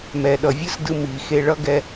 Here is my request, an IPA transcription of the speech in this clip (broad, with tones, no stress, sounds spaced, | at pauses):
m ɛ˩ ɗ ʌ˩ vʲ ɯ˥ s d ɯ˧ m i˩ x e˧ ɭ ʌ˥ ɡ ɛ˧